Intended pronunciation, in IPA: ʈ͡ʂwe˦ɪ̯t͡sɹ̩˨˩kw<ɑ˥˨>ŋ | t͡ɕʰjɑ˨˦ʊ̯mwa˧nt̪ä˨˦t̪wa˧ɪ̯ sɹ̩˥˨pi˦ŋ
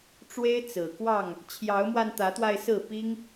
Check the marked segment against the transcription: correct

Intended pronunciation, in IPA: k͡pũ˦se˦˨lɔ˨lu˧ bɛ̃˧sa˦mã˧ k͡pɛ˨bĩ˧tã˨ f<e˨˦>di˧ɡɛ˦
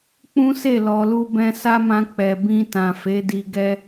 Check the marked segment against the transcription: correct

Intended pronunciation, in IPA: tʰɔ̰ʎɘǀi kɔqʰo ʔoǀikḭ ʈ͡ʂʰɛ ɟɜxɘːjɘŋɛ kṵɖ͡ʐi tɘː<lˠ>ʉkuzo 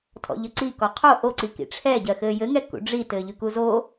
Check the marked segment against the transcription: incorrect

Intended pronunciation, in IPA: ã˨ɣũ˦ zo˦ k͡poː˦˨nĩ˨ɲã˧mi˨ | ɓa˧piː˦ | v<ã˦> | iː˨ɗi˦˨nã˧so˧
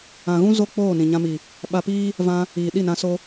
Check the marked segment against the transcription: incorrect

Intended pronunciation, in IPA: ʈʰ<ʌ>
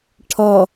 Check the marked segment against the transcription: correct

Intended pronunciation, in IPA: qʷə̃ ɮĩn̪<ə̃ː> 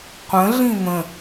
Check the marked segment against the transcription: incorrect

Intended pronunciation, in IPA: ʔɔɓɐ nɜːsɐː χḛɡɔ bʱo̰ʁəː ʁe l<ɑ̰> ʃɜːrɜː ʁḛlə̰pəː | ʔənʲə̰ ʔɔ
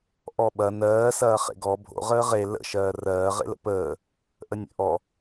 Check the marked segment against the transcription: incorrect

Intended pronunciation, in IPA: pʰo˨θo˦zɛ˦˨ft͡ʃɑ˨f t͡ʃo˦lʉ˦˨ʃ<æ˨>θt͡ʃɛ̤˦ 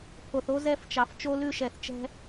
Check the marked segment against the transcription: incorrect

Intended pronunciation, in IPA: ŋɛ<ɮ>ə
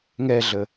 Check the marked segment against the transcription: correct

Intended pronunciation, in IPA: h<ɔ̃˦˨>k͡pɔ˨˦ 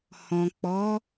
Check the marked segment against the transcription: incorrect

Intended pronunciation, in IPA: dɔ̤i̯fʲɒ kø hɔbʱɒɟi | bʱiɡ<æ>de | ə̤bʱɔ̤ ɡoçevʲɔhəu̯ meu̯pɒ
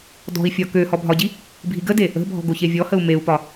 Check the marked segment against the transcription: incorrect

